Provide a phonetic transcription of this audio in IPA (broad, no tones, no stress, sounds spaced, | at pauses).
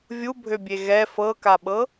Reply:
vʲ u bʱ ø bʲ e ɣ ɛ f ɤ k a ɓ ɤ